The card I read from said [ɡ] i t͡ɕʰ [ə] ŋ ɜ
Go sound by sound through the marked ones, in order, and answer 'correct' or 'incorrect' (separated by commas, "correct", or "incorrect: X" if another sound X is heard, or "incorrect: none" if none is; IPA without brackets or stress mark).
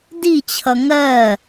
incorrect: d, incorrect: ʌ